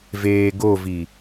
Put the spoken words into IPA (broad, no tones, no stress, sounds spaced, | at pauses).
v eː ɡ o v i